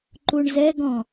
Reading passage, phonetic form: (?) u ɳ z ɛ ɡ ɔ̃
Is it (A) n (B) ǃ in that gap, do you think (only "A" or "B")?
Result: B